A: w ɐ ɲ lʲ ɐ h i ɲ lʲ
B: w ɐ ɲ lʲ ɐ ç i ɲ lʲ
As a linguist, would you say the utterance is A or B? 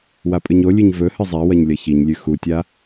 B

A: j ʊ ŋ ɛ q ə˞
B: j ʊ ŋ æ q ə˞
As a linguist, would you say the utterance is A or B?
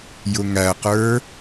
B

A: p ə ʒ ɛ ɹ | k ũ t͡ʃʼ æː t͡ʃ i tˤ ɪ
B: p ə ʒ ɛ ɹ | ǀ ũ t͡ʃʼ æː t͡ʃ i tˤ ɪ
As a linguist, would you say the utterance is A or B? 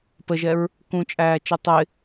A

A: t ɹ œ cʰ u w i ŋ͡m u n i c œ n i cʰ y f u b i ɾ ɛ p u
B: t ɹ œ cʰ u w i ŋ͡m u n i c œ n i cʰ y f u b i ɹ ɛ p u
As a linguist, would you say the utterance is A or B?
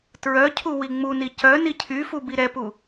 A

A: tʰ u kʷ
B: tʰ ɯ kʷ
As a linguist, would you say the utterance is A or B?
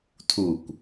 A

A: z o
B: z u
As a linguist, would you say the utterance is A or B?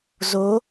A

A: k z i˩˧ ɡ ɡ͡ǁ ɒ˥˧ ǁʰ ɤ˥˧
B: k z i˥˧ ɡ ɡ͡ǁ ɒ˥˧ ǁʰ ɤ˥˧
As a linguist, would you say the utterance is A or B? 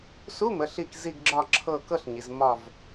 B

